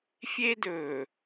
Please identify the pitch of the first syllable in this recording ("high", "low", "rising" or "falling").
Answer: high